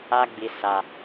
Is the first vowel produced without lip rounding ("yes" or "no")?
yes